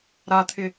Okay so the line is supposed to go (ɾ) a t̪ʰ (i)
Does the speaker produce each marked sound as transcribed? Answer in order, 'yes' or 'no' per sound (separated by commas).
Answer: yes, no